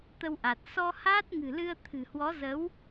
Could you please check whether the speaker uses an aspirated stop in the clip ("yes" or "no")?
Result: yes